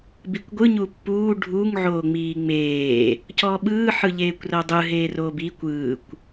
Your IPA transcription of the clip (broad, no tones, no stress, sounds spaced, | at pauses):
b i kʷ ɡʷ ɯ ɲ u pː uː ɖʱ u ŋ ʕ oː ŋ͡m iː ŋ͡m eː | c ɔ ɓ ɯː ħ ɯ ʎ eː kʷ r ɤ dˤ ɯ ɦ eː r oː b i kʷ ɯː kʷ